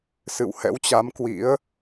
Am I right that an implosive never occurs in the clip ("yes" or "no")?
yes